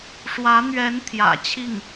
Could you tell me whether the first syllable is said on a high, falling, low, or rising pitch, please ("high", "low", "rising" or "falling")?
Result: rising